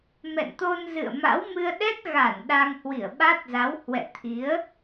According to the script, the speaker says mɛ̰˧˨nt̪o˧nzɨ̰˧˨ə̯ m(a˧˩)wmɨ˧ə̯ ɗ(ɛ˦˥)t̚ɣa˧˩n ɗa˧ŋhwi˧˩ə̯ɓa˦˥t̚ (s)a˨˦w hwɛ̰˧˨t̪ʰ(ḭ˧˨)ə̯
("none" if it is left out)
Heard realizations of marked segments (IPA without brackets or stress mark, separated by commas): a̰˧˥, ɛ˦˥, z, i˨˦